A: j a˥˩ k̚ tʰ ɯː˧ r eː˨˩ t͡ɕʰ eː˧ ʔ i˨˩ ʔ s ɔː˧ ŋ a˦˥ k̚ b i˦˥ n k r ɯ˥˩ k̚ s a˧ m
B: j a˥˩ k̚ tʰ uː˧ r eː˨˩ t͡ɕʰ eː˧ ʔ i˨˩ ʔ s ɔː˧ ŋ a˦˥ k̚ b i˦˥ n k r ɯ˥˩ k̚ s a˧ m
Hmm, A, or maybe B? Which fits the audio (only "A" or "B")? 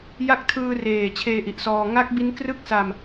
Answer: A